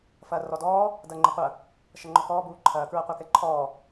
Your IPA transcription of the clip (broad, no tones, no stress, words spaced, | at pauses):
fɐːrɔdɔː | dɐːŋ͡ǃəqʷɐ | ʃɐŋ͡ǃɔkɔː buːǃʰɐː kɹɐqʷakɛǃʰɔː